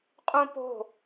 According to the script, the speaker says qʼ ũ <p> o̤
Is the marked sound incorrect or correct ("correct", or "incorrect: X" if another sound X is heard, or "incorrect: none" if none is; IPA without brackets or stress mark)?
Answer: correct